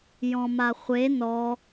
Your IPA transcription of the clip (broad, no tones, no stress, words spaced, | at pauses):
jɔ̃maχʷe nɔ